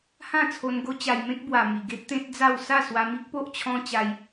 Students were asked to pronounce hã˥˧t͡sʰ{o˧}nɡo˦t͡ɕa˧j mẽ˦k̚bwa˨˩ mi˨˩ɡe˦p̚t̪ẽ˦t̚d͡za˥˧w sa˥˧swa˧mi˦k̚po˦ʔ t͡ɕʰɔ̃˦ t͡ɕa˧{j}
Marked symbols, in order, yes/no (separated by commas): yes, yes